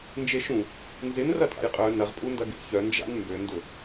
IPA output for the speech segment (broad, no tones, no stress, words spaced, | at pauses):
nd͡ʒeʃũ | nzɪn rɐtʼa̰jqʼœ nɐʁpʼundɐɡḛ çœnd͡ʒa̰n mbøndʊ